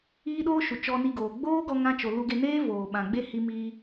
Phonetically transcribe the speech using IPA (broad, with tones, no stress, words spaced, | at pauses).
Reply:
iː˦ɗoː˦ʃu˨ t͡ʃɔ˧ni˧ɡoː˨ ɡ͡boː˦ɡɔ˧ŋã˧t͡ʃo˨ lu˧ɡe˧ neː˦voː˨ ɓã˨ɡ͡be˦ hi˧miː˧